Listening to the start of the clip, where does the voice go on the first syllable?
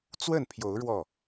falling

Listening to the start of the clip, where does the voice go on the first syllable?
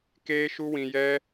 high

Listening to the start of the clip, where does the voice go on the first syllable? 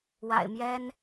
low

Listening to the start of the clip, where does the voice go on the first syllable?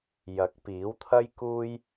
rising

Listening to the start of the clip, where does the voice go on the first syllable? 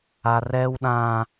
high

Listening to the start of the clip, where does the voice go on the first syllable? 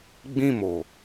falling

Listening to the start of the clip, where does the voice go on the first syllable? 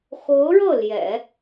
rising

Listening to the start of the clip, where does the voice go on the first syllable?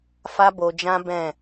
high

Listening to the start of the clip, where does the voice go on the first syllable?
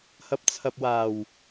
rising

